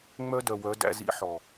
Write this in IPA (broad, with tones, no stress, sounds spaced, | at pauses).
ŋ͡m œ˦ d œ˨ w œ˨˦ d æ̰˦ z ḭ˦ ħ ɔ˨